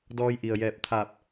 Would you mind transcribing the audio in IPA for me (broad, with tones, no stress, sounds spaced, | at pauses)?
d ɔː˧ j ʔ i˩ ə̯ j ɛː˧˩ p̚ t̪ʰ aː˧˩ p̚